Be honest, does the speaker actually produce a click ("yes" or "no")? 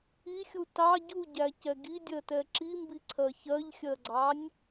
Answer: yes